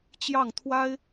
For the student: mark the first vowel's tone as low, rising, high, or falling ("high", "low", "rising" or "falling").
falling